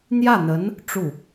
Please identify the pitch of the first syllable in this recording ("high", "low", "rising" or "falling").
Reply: falling